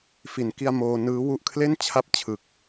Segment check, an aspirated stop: present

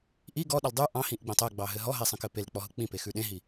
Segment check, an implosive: present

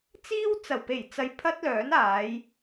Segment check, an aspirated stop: present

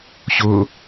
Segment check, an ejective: absent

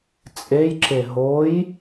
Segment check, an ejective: present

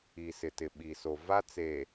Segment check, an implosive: present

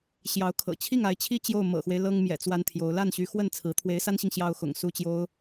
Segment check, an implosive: absent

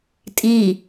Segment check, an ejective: present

